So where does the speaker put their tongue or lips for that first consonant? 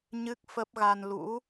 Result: palate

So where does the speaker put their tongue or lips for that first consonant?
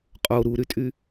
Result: uvula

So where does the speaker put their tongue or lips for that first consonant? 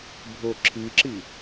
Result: lips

